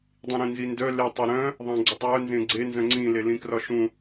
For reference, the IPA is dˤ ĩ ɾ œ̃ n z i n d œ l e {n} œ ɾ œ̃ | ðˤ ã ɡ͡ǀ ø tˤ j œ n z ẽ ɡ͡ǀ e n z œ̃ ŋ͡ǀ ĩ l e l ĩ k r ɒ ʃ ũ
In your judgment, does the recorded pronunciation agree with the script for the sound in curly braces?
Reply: no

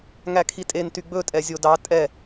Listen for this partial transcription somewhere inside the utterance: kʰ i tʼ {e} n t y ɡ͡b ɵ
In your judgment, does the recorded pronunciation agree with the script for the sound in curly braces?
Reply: yes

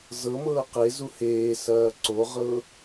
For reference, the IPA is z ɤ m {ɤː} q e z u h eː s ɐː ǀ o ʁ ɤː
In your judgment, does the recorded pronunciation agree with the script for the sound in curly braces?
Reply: yes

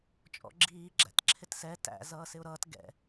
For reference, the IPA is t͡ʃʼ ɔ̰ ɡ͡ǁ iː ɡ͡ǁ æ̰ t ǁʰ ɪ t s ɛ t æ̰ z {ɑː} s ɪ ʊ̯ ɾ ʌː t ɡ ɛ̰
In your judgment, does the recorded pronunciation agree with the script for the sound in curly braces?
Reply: no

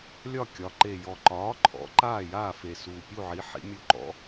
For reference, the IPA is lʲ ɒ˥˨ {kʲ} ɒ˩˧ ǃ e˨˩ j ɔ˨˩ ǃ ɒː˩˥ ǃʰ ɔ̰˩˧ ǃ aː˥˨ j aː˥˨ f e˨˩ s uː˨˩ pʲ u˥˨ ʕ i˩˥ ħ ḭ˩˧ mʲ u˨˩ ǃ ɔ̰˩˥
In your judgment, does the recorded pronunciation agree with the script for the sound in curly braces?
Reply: yes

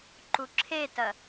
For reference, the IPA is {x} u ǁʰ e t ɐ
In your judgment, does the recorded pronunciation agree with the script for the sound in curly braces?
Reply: no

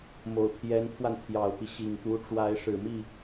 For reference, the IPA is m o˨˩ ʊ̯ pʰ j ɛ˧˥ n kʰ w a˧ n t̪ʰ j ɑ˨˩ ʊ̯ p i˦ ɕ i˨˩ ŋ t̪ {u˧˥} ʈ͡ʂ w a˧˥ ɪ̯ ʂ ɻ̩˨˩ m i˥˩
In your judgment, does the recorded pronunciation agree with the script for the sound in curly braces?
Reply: yes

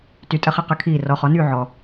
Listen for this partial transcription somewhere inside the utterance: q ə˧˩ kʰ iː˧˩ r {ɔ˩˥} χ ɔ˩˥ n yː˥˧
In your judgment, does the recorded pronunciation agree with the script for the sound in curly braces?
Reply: yes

